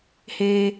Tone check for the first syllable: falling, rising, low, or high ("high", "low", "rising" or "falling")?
low